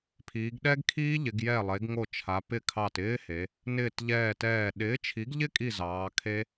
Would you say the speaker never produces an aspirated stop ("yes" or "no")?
no